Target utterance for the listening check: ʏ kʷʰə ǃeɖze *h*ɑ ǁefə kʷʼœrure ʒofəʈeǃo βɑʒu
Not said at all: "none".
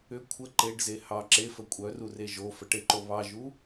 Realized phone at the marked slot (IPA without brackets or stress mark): h